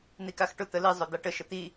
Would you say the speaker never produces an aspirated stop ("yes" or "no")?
yes